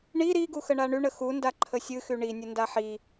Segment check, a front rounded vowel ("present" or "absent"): present